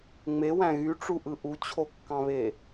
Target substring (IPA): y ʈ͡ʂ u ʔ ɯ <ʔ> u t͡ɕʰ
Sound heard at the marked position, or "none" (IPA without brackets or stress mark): ʔ